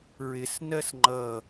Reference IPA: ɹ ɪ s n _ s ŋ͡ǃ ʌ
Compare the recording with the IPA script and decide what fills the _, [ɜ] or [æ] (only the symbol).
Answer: ɜ